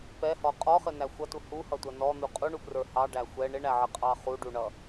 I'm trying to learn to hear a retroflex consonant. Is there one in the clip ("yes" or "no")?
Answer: yes